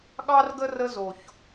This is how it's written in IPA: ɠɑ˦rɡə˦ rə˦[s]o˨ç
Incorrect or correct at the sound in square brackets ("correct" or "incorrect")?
incorrect